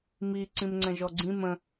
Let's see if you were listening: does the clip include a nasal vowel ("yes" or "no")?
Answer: yes